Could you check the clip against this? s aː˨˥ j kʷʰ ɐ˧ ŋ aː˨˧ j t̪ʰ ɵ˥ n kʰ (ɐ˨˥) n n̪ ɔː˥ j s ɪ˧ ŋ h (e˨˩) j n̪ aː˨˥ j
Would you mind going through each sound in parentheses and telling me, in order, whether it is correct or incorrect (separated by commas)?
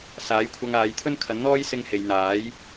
correct, incorrect